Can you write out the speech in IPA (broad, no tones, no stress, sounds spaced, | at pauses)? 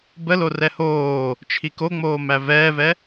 b ə l o r ɛ h oː | t͡ʃʰ i k o ŋ͡m oː m æ v ɛː v ɛ